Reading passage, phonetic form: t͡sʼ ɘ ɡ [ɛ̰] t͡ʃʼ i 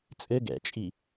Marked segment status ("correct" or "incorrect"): correct